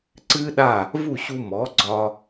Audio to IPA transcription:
ǀɨː˥ɗa˥˩ | vu˥˩ɕu˧ mɔ˩˥ɡ͡ǀɒ˧

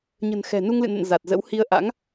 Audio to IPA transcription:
ɲə̤˨˩n xɛ̤˨˩ nu˧ŋlɨ̰˧˨nə̰˧˨n za˨˩t̚zə̰˧˥w hi˧ə̯ ʔa̰˧˥ŋ

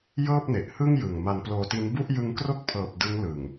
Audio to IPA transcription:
jɤː˥˩p̚ne˨˩ʔhɯ˥˩ŋjɯ˨˩ŋ ma˧nploː˧ti˦˥n bu˥˩ʔjɯ˦˥ŋkro˥˩k̚pʰɤː˨˩p̚ dɯ˦˥ŋlɯ˨˩ŋ

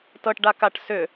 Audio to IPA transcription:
tɤʈɖakaʈ sʏ

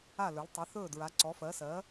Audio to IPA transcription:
a˧˩lɵ˩˧l tˤɘ˩˧θɵː˧˩dɹa˩˧ ǀɔ˩˧fɜ˩˧ sɜ˩˧

